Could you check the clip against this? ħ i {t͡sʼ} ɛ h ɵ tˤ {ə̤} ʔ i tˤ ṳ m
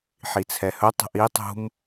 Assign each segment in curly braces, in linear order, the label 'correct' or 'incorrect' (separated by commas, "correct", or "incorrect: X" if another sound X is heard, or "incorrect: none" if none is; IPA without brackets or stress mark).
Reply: incorrect: t͡sʰ, correct